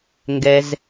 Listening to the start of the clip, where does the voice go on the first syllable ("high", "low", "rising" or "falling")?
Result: low